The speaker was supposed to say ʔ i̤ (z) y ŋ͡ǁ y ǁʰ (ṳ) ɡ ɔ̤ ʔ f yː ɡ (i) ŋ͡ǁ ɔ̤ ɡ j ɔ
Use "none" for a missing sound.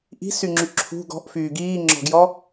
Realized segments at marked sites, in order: s, ṳ, iː

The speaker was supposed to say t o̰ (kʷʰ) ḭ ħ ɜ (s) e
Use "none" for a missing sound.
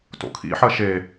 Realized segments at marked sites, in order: kʰ, ʃ

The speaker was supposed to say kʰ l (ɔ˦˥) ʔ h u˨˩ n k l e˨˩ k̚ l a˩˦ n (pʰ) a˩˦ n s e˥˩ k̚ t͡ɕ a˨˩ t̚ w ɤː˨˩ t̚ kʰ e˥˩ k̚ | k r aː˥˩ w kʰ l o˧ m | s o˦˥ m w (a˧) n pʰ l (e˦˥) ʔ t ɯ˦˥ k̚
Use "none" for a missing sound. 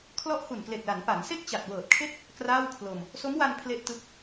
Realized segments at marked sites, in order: ɔ˦˥, p, a˧, e˦˥

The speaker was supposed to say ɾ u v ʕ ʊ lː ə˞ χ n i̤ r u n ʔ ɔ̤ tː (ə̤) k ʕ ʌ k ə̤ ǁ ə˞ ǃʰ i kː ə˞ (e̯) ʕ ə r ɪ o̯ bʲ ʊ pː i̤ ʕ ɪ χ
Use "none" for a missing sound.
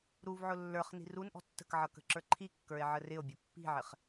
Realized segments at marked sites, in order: ə̤, e̯

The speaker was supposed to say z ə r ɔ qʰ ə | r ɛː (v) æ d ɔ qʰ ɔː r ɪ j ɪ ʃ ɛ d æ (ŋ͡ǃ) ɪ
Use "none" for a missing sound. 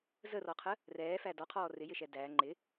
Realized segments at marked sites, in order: f, ŋ͡ǃ

